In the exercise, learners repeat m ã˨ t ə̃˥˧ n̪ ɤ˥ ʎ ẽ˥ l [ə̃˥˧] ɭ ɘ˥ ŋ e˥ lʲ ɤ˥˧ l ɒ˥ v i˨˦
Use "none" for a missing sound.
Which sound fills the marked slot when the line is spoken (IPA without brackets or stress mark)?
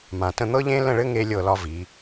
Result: ə̃˥˧